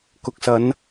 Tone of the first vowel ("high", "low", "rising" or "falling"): low